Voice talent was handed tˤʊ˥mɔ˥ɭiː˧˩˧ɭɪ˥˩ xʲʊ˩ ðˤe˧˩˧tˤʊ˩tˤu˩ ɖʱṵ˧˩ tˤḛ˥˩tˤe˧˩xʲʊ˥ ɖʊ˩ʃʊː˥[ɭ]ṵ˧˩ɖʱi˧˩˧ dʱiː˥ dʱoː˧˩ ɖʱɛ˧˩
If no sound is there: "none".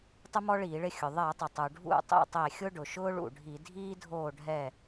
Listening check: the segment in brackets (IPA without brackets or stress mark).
ɭ